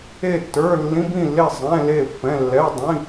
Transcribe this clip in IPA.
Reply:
e˥˨ tː ə˞˧˥˧ lː ĩ˧˥˧ b ĩ˥˨ lː e˥˨ zˤ ɛ̃˧˥˧ l e˥˨ f ɛ̃˧˥˧ lː ɛ˧˥˧ dˤ ĩ˧˥˧

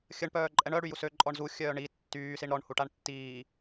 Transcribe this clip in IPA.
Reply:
xʲ ə ɳ p œː ǃʼ ɛ ɳ œ ɽ y j u s ø ǃʼ ɔ ɳ z u xʲ œː ɳ i tː yː s i ɳ ɾ ɔ ɳ h u ʈ a ɳ tː iː

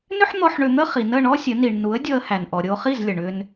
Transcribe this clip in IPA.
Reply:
n ʏ˥ ħ n̪ ɔ˧ ħ ɳ ʏ˧ n̪ ə˥ χ i˩ n ə˥˩ ɳ ɔ˥ sʲ ə˩˥ n i˩ ɳ n u˩˥ ə̯ dʲ ɔ˧ ə̯ h æ˩ n ʔ ɔ˩ ɾʲ o˧ χ i˥˩ z lʲ ə˩ ɳ ʏ˧ n

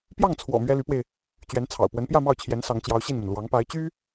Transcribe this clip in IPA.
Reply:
p j ɑ˥˩ ŋ t͡sʰ w ɔ̰˨˩ m ɥ ɛ˥ l y˧˥ p w e˧ ɪ̯ | t͡ɕ ɥ ɛ˧˥ n t͡sʰ ɑ̰˨˩ ʊ̯ p w ə˧˥ n p j ä˥˧ m ɑ˥˩ ʊ̯ t͡ɕʰ j ɛ˧˥ n s ɑ˧˥ ŋ t͡ɕ j ɑ˧˥ ʊ̯ ɕ i˥˩ n m ə˩ n l w ɑ˧˥ ŋ p a˧˥ ɪ̯ t͡ɕ y˥

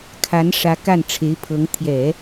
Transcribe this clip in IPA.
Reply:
kʰ a˧˥ n ʂ ä˧˥ k a˥˩ n ʈ͡ʂʰ e˧˥ ɪ̯ pʰ ɤ˧˥ ŋ t̪ʰ j ɛ˨˩˦

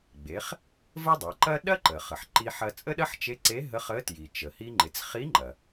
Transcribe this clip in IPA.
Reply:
ɡ͡b e˩˧ χ | v ə˥ dˤ e˩˧ ǃ ɐ˥ ɗ ɐ˥ ǃ ə˩ χ ə˩ ħ ǃ i˧ ħ ɐ˧ t͡sʼ ə˥ ɗ ɐ˥ ħ t͡ʃ e˧˥ ǀ e˧˥ ɦ ə˧˥ χ ə˧˥ t j i˩ t͡ʃ ə˩ h i˧ ŋ͡ǃ ɪ˩˧ t͡s χ i˧˥ ŋ͡ǃ ɐ˩

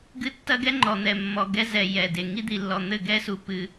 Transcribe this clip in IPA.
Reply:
ɡ ɨ˦ tː ɐ˦ ɡ ɛ˦ ŋ͡ǃ ɔ˨ n̪ ɛ˨ mː ɔ˨ ɡ ɛ˦ z ɛ˨ j ɛ˨ d e˨ ŋ i˦ d̪ i˨ lː ɔ˨ n̪ ɘ˦˨ ɡ ɛ˦ s u˨ p ɨ˦

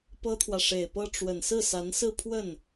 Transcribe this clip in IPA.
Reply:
p ɤ˥ t̪ʰ w ä˨ ʂ e˨˩ ɪ̯ p ɤ˥ ʈ͡ʂ w ə˨˩ n s ɹ̩˥˩ s a˧˥ n s ɹ̩˥˧ pʰ w ə˥˩ n

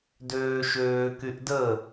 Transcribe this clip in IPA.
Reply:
d øː ʃ øː k y ʔ d ə

